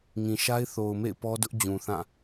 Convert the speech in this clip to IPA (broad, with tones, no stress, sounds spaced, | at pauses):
ŋ ĩ˨ ʃ a˦ ɪ̯ θ o˨ ʊ̯ m ḛ˦˨ ɪ̯ p ɔ˦ d ʊ˦ ʔ d͡ʑ ũ˨ θ ã˦˨